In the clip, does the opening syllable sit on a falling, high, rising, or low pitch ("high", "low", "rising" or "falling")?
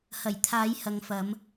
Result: low